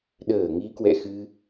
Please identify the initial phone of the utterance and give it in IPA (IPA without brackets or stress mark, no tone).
ɗ